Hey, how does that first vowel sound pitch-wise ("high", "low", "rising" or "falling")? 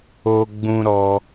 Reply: high